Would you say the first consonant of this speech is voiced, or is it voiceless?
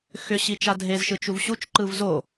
voiceless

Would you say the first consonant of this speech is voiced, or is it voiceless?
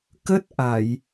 voiceless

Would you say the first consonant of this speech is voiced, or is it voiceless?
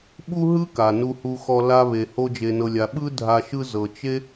voiced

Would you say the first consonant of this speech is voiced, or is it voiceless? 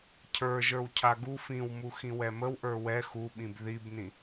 voiceless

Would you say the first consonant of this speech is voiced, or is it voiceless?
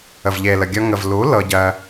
voiced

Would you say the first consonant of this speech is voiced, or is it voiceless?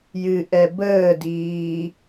voiced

